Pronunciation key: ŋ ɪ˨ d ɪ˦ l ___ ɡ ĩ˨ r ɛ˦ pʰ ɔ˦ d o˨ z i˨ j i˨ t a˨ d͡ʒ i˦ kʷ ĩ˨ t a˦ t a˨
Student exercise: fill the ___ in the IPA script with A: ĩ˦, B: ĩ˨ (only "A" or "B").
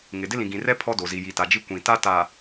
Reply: B